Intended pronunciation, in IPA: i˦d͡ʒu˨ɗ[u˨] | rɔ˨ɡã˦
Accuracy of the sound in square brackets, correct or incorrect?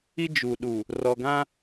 correct